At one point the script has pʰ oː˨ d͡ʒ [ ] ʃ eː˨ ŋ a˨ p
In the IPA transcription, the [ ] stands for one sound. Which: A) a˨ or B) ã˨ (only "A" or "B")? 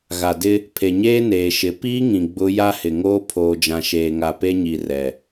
B